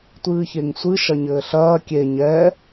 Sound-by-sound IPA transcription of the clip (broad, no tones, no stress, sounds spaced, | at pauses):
tʷ ɨː ç e ŋ sʷ ɨ ʃ ɐ ɲ ɘː ɬ ɐː kʲ e ɲ ɛ